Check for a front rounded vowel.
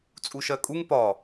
absent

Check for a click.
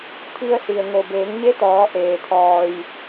absent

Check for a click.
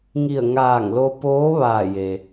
absent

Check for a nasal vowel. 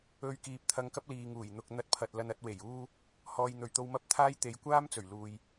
absent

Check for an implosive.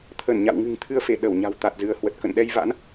present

